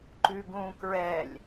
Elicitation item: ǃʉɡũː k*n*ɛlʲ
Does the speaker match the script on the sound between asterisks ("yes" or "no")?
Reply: no